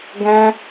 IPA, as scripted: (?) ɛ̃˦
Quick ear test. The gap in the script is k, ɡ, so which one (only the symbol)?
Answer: ɡ